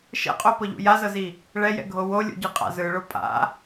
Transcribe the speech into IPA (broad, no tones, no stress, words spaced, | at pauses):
ʃɛ̰qʼopɤʎṵ jazɤzi | ɭɛjɛ̰ɡʱo wolʲṵɟɯqʼa̰ zɯɭo pʼa̰